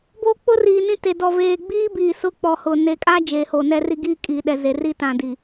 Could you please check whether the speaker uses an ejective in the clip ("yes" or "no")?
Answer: yes